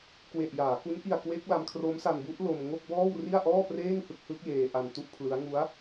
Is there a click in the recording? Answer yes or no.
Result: no